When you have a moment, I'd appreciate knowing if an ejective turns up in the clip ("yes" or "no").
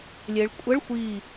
yes